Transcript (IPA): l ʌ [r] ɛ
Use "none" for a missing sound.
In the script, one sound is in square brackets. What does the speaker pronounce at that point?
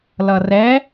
r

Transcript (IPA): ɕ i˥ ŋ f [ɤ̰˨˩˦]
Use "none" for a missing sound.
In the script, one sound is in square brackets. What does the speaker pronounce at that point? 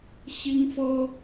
ɤ˥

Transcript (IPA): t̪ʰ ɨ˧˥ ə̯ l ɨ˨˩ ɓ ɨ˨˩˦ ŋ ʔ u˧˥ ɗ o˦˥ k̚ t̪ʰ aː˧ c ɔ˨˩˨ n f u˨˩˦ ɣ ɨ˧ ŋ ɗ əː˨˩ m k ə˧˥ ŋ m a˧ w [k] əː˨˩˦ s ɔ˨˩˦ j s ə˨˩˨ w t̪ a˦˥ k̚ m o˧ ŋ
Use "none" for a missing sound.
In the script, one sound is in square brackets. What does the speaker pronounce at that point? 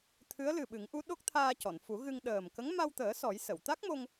t̪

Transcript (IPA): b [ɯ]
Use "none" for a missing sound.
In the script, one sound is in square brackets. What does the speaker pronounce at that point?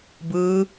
ɯː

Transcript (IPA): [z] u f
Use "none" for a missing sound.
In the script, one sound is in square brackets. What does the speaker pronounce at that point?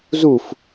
z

